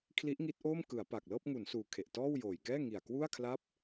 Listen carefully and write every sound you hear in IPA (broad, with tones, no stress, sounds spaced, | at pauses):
kʰ l i˦˥ ʔ ŋ i˦˥ t̚ ʔ oː˥˩ m k ɯ˩˦ a̯ p a˨˩ k̚ l ɤː˥˩ p̚ ŋ u˩˦ n s uː˨˩ kʰ e˨˩ ʔ t ɔː˥˩ w j oː˨˩ j k ɛː˥˩ ŋ i˨˩ a̯ k w u˥˩ a̯ kʰ l a˥˩ p̚